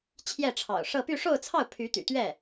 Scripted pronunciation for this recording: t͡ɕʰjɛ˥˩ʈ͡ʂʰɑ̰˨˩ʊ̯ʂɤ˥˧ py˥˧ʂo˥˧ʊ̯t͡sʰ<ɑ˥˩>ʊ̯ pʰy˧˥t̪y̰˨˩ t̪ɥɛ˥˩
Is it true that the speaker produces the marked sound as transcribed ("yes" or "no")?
yes